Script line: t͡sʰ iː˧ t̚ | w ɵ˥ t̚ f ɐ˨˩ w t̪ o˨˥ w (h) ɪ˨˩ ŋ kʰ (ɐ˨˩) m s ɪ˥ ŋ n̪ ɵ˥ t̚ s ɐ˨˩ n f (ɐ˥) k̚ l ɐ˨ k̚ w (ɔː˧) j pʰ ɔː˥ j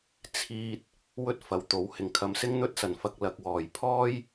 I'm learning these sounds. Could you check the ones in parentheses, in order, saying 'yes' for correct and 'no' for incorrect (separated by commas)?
yes, no, no, no